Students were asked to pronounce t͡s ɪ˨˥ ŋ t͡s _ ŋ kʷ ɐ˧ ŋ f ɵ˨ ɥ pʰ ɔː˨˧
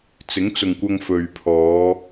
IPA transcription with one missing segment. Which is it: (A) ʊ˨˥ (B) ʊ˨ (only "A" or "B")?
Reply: B